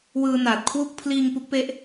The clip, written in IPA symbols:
w ɯː˧ n aː˨˩ t̚ kʰ w u˥˩ k̚ pʰ l iː˧ ŋ p u˦˥ k̚ p e˥˩ ʔ

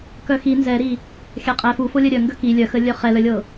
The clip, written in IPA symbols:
k œ x i n z ɛ ɾ i | xʲ a qʼ ɛ f u f o lʲ œ ɾʲ œ ŋ ɡ ə k i lʲ œ x ə lʲ œ χ ɛ l œ lʲ ɤ

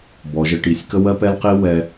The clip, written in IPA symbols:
b ɔ˩˧ ʒ ə˧ ʈ i˩˧ sʲ k ə˥ w ɜ˥ p ɛ˥ l q i˥ w ɛ˧

